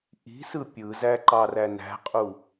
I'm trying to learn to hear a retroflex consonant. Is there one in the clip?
no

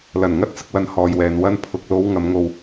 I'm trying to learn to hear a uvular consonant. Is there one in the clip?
no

